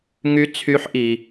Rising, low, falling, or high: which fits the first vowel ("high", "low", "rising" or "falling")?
rising